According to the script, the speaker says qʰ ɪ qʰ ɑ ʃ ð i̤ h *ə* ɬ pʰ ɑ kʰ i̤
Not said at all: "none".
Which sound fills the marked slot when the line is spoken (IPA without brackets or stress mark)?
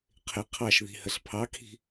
ə